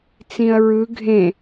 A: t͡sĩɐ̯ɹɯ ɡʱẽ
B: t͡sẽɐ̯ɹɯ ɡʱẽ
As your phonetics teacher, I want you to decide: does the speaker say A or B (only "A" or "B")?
A